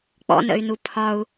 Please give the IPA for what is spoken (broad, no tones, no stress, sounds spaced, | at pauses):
k͡p ɔ̰ n ə̰ y̯ n u pʰ ɒ u̯